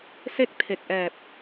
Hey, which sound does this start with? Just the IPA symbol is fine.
s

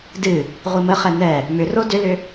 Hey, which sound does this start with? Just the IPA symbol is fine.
d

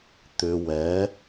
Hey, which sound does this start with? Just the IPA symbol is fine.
t̪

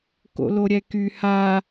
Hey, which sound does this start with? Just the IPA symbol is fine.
k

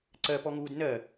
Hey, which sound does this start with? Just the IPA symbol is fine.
ǀ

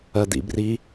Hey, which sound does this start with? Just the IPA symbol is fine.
ɜ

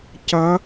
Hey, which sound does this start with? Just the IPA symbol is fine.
c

